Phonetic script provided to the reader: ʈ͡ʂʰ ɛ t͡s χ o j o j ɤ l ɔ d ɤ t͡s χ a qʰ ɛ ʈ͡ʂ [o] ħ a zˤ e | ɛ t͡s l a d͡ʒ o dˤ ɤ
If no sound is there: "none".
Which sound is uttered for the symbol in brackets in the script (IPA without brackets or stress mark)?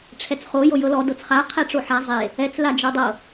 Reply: o